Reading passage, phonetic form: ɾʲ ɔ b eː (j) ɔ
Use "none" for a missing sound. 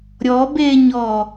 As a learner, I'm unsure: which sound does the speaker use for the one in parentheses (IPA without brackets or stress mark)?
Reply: ɲ